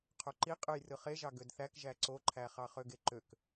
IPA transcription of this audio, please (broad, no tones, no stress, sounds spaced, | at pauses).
qʰ o ǃ i qʼ ɯ j r ɯ χ e ʒ ɑ ɡ ø d θ æ k ʒ æ ǀ o ǃʰ æ χ ɑ χ ø ɡ e ǃ ø k